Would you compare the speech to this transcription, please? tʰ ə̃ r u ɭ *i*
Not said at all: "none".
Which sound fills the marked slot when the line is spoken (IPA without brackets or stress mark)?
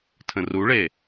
e